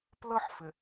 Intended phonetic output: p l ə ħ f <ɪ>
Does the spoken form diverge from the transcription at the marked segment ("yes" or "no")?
no